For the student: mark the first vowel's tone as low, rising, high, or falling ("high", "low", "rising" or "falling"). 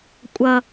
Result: low